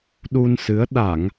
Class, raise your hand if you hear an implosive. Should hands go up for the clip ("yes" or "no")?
yes